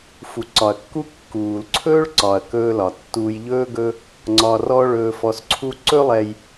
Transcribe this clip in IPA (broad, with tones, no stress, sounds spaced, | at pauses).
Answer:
f u˩ ǀ ɒ˩ ɐ̯ kː u˥ kː uː˩ l ǀʰ ɵː˥ ɭ ǀ ɒ˩ ɐ̯ k ɵː˧ l ɒ˩ tː uː˧ j ʎ ɵː˥ ɡ ɵ˥ | ŋ͡ǀ ɒ˧ r ɔ˥ ɭ ɵː˧ f ɔ˧ s ǀʰ u˥ ǀ ɵ˥ lˠ ɛ˧ j